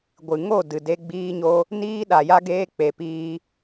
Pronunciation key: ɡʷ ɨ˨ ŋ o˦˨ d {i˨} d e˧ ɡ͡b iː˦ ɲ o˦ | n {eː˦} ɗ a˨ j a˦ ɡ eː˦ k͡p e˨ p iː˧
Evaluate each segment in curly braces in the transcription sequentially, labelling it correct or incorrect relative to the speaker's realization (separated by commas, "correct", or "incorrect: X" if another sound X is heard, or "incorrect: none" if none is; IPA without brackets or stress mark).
incorrect: ɨ˨, incorrect: iː˦